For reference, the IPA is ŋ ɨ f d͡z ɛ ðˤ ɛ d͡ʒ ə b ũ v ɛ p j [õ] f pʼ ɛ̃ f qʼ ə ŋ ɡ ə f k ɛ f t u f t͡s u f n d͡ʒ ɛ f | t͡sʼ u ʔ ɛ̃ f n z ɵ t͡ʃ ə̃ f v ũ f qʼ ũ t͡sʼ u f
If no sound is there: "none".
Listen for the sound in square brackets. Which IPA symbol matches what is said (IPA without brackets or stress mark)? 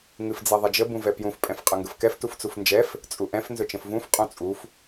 ũ